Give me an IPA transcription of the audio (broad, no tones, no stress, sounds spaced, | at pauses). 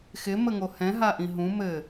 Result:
x ɪ m ə ŋ o h ɛ̃ ɦ a ʔ ĩ ɦ ũ m ɘ